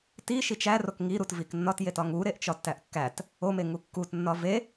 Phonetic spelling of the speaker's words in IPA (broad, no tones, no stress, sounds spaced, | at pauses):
t i ʃ i t͡ʃ æ r o k ŋ i ɾ u t v i k nː ɒ t j e t ɒ ŋ u ɾ e ʔ t͡ʃ ɒ tː æ ʔ kː æ t | o m e ŋ u kː u t nː ɒ v e